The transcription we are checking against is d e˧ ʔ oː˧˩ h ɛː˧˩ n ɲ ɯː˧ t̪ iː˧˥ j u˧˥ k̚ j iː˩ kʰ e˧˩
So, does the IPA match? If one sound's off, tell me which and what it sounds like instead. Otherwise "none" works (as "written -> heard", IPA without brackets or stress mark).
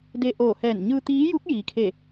none